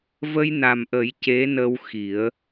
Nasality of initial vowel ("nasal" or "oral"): oral